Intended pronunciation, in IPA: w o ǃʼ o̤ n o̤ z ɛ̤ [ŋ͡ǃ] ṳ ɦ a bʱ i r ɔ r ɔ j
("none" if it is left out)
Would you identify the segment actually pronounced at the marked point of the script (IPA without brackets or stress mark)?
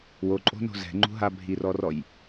ŋ͡ǃ